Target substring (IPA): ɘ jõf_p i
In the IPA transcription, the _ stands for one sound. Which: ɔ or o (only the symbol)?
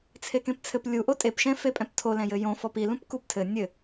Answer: ɔ